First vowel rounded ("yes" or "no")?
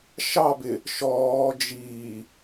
no